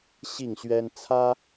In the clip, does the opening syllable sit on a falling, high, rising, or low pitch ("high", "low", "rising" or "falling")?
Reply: falling